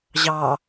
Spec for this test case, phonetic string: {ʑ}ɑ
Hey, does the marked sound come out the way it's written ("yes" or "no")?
yes